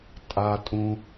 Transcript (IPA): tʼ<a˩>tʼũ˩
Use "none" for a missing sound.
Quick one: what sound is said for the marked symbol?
a˩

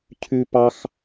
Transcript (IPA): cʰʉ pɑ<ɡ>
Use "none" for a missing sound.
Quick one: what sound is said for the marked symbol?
x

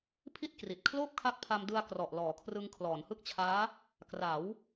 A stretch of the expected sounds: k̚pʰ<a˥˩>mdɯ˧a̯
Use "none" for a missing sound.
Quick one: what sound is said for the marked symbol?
a˧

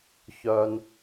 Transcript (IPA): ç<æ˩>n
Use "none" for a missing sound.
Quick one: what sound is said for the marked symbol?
œ˩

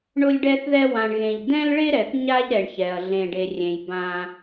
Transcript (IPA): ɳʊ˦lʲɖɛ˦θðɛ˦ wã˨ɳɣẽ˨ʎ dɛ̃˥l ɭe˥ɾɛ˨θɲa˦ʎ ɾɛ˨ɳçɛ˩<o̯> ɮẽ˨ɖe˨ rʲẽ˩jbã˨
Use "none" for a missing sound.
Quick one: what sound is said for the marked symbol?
ɐ̯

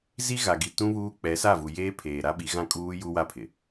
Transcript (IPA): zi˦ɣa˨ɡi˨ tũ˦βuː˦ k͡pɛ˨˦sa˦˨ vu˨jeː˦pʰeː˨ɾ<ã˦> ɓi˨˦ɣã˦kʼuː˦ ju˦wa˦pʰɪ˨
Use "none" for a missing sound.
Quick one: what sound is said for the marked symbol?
a˦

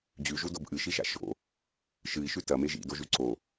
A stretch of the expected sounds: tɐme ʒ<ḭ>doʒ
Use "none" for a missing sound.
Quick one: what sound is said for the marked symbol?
ḭ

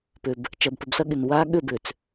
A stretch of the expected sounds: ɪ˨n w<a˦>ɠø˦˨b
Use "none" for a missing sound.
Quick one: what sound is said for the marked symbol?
a˦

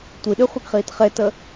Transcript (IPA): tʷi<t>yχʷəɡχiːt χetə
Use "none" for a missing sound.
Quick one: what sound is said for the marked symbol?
ɗ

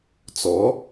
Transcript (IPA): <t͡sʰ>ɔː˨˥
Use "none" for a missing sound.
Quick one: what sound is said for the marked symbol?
t͡s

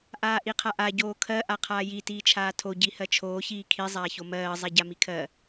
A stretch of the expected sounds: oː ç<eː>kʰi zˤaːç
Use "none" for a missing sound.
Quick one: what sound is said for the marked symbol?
iː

